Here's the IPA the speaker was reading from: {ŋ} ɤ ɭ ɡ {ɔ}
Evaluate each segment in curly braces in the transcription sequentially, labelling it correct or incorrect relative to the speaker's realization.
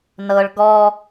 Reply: incorrect: n, correct

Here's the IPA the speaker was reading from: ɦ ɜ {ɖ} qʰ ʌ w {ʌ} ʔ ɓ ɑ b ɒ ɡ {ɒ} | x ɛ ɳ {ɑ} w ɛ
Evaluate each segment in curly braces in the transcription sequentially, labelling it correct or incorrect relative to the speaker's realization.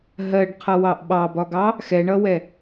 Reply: correct, incorrect: ɑ, incorrect: ɑ, incorrect: ʌ

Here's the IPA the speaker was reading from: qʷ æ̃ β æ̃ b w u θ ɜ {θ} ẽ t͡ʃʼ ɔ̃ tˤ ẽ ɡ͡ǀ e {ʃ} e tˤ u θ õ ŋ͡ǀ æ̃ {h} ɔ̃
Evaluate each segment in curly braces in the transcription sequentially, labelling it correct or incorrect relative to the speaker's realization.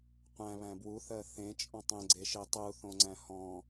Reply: correct, correct, correct

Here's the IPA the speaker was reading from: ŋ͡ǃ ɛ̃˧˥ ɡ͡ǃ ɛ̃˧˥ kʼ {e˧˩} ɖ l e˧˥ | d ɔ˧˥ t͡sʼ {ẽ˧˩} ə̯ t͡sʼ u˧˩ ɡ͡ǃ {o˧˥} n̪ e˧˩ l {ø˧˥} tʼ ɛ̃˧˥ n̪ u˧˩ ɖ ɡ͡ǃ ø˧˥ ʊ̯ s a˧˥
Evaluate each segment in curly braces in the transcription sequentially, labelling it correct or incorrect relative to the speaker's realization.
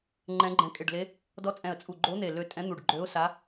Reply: correct, incorrect: ɛ̃˧˩, correct, correct

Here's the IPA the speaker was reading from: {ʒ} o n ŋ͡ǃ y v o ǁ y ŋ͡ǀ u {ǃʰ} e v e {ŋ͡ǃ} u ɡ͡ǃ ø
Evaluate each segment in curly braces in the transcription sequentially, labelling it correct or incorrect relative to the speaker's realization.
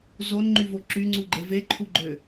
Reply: incorrect: z, incorrect: ɡ͡ǃ, incorrect: ǃʰ

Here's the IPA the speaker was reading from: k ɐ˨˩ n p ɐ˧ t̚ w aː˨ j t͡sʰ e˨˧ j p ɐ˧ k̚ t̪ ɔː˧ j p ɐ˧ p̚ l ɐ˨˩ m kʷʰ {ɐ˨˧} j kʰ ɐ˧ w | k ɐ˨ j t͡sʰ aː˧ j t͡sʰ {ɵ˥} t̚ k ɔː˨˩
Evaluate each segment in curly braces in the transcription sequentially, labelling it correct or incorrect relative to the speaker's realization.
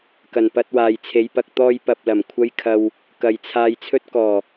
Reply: incorrect: ɐ˥, correct

